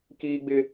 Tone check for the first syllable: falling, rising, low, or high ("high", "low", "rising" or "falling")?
high